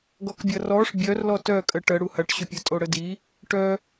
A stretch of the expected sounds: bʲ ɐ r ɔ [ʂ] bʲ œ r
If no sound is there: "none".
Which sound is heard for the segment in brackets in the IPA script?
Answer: ʂ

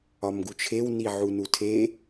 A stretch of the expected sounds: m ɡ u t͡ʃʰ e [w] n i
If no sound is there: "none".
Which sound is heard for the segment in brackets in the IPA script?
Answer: w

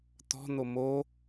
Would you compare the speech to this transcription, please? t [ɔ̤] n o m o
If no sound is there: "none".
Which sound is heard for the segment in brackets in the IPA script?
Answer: ɔ̤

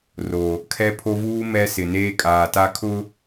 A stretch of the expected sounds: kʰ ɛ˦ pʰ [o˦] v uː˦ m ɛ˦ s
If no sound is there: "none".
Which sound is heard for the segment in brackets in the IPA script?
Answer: o˦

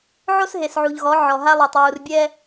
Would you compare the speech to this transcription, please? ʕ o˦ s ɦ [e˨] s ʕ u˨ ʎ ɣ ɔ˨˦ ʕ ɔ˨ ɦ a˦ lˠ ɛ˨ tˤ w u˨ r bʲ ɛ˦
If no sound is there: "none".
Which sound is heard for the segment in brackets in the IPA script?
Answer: e˨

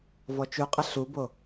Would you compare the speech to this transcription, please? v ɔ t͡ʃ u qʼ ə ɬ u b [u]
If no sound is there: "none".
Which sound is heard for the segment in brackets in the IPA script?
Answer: o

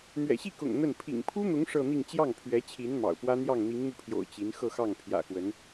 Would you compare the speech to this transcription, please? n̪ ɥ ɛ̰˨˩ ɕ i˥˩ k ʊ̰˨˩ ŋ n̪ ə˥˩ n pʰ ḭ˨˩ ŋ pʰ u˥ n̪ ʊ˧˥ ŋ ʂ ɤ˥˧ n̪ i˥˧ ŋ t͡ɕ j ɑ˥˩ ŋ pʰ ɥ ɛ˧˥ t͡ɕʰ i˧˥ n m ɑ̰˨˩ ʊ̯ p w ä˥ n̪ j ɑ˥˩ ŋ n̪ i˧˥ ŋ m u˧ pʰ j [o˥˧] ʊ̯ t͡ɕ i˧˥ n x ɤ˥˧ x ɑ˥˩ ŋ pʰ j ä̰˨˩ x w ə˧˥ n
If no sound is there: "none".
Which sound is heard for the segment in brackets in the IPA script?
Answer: o̰˨˩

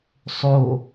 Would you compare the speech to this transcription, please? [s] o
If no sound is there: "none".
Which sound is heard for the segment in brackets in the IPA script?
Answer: sˤ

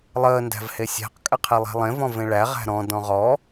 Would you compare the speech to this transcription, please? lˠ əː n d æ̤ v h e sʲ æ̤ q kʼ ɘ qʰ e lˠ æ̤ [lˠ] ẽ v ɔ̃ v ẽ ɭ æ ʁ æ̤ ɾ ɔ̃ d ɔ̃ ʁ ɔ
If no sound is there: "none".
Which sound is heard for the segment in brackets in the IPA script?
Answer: lˠ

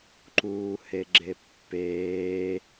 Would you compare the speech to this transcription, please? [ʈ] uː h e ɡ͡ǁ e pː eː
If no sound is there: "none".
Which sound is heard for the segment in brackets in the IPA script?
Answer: ǃ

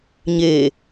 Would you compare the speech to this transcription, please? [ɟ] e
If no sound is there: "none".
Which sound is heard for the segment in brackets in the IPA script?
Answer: ɲ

